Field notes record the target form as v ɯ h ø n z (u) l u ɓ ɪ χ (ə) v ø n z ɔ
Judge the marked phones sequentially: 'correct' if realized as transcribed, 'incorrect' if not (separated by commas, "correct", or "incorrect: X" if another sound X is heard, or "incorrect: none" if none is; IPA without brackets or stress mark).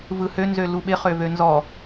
incorrect: ø, incorrect: ø